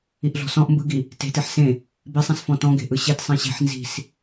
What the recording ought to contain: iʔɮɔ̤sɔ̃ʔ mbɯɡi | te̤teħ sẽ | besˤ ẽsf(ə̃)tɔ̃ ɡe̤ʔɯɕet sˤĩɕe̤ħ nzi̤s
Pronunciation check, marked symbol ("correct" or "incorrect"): incorrect